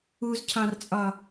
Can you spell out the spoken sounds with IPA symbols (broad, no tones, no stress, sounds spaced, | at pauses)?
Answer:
u z cʰ ɑ̃ r t͡sʼ ɒ